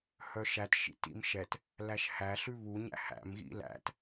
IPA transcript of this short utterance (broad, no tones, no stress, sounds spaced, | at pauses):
h œ ʃ æ t ʃ ḭ t ḭ m ʃ ɛ t | l æ ʃ h æ ɬ ʉ β u ɲ æ̰ h æ̰ m ɣ ḭ l æ̰ t